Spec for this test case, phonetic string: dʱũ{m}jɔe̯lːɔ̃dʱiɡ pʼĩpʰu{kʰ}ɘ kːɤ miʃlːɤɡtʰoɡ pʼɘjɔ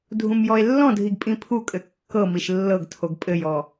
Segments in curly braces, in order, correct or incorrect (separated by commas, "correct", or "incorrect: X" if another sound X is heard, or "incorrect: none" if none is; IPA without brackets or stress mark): correct, incorrect: kʼ